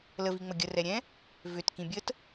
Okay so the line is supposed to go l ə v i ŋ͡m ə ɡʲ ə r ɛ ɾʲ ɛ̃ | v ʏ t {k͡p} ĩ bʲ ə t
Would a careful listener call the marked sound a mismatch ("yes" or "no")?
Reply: yes